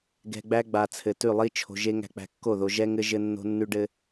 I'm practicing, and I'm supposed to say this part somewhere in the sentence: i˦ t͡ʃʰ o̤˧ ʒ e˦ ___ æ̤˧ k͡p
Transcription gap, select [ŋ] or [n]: ŋ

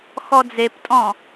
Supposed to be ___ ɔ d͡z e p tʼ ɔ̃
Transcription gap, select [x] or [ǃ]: x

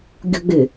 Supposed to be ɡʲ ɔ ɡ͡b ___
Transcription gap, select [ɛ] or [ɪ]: ɪ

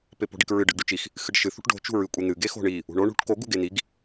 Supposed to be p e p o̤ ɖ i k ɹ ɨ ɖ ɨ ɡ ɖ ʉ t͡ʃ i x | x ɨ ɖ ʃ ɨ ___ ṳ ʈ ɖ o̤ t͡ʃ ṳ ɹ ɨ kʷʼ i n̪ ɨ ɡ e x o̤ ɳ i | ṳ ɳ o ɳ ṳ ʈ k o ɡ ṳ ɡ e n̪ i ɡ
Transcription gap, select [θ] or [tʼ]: θ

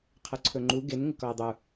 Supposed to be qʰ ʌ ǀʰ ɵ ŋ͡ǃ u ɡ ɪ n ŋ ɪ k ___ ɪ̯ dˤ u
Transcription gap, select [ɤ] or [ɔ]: ɔ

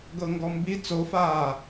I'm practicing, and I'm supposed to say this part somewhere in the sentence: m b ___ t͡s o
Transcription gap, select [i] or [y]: i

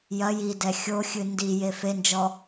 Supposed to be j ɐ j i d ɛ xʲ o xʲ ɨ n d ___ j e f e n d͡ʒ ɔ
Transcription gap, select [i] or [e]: i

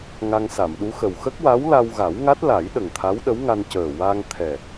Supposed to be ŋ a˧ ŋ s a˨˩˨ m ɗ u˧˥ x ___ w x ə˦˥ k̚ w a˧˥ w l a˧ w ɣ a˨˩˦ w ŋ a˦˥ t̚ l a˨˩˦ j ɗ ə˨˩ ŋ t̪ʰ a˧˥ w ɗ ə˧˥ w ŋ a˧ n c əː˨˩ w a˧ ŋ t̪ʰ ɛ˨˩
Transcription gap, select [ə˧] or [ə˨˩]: ə˨˩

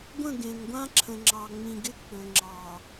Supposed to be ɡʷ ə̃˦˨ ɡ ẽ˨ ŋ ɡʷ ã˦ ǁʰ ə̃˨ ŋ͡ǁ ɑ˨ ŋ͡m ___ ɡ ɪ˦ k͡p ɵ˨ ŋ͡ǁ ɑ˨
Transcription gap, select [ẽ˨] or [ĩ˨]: ĩ˨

